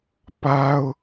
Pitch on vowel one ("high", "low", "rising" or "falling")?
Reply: high